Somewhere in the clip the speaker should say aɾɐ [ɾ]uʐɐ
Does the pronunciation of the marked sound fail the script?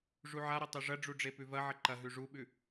yes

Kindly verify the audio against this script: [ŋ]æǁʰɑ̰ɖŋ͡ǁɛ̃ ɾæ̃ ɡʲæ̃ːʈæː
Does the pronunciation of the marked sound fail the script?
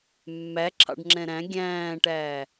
yes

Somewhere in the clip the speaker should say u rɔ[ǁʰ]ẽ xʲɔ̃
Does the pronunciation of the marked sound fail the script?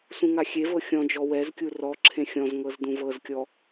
no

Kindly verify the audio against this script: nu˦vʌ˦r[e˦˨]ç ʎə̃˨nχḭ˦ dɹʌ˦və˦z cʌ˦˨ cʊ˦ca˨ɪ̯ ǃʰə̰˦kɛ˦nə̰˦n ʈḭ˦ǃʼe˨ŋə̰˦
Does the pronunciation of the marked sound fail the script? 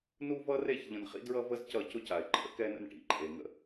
no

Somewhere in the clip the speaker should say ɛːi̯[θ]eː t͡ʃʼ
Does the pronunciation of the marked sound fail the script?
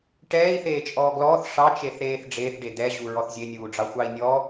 no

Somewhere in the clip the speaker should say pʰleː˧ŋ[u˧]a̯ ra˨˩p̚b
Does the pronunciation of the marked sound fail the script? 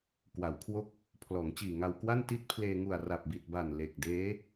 yes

